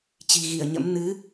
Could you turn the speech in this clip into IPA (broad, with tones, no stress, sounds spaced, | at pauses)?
t͡ɕ i̤˨˩ ɣ i˧˩ ə̯ ɲ ə̰˧˥ m n ɨ˨˦